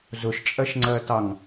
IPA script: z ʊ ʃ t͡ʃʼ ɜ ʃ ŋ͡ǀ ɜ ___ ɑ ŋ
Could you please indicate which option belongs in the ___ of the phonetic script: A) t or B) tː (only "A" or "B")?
A